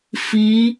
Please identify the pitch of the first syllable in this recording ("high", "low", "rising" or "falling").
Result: rising